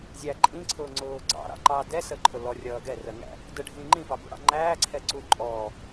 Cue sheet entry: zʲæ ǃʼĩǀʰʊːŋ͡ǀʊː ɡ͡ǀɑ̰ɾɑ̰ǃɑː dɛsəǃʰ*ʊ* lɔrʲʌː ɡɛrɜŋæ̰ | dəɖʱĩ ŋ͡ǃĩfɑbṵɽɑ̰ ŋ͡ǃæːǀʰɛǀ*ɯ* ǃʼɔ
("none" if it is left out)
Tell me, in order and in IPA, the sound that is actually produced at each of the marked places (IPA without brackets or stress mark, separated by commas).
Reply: ʊ, u